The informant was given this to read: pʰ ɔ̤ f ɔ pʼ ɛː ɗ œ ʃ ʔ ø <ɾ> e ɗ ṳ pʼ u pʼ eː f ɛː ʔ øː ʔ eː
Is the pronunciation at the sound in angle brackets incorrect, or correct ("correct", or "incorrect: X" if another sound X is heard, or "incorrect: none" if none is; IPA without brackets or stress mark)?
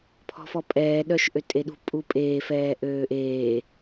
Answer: incorrect: tʼ